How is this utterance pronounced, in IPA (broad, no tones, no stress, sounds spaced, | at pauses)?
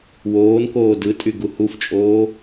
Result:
w oː n k oː d ɯ tʼ y ɡ u h u f t͡ʃʼ oː